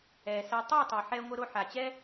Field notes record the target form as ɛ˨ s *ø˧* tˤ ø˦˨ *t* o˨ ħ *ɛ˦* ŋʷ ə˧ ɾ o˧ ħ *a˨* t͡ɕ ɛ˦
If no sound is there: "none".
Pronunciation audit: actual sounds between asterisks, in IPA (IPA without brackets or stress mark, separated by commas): ɛ˧, tˤ, ɛ˧, a˨